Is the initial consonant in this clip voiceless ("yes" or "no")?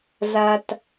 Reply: no